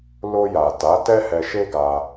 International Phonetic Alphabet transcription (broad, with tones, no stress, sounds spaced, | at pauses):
l o˧ j a˨ t a˨˦ t ɛ˦ h ɛ˧ ʃ e˦ ɡ a˧